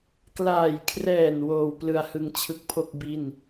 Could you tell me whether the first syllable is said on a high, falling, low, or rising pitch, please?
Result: low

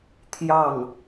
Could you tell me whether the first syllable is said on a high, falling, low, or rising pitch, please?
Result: falling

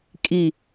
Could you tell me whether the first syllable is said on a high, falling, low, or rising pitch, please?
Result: falling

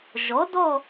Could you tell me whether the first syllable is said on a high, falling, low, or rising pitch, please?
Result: rising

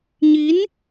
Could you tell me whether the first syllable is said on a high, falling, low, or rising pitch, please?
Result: rising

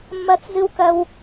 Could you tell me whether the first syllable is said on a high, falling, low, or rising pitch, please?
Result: high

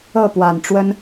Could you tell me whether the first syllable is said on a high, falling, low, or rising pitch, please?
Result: falling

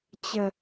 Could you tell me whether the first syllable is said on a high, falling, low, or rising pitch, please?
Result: low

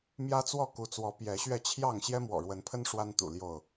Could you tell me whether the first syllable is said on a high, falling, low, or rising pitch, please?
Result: high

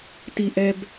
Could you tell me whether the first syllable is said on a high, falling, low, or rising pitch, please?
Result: low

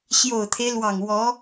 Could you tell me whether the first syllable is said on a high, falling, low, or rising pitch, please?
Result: low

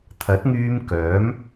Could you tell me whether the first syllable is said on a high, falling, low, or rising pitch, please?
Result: rising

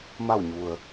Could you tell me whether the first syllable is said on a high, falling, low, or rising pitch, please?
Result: falling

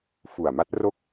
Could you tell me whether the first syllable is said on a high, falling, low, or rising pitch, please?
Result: low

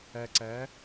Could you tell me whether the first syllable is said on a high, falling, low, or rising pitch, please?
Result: low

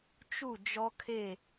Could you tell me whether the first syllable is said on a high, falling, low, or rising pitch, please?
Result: falling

